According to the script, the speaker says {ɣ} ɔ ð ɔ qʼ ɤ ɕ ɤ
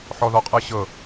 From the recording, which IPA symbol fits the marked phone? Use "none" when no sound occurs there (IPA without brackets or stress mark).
ħ